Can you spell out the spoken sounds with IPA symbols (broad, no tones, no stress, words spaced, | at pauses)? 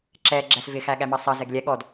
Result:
ǁɛ ɡ͡ǁæsvɪ xæɠæmɑsˤɑ zɛɡlʲɛ ɠɔd